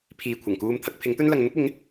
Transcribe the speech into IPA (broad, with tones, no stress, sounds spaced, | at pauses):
pʰ iː˨ kʷʰ ɐ˨˩ ŋ k uː˧ m t̪ʰ ɐ˧ k̚ pʰ ɪ˨˥ ŋ t̪ ɵ˥ n l ɐ˧ ŋ n̪ ʊ˥ k̚ ɪ˨˥ ŋ